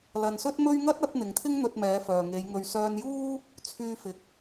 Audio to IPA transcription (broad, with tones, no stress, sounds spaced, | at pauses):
l ɐ˧ n s ɵ˥ t̚ m ɵ˥ ɥ ŋ ɐ˥ t̚ ɐ˨˥ t̚ n̪ ɪ˨ ŋ t̪ʰ ɪ˥ ŋ n̪ ɵ˧ t̚ m ɛː˨˧ f œː˨ ŋ e˨˧ j ŋ ɵ˧ ɥ s œː˧ n j uː˥ | t͡sʰ yː˧ f ɪ˨ k̚